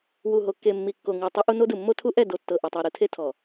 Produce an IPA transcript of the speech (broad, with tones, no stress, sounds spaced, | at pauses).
w u˨ ɦ o˨ kː e˨ mː i˨ kː o˨ ŋ u˨ tˤ u˦ ʔ u˦ n o˦ d ɯ˨ mː o˦ tʰ u˦ ʔ ɛ˦˨ d o˨ tː ɤ˨ ʔ ɛ˨ tˤ e˨ ɾ ɯ˨ tʰ e˦ tʰ ɔ˨